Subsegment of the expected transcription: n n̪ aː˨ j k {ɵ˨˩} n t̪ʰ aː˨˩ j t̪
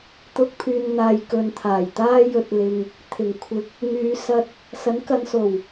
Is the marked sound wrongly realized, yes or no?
yes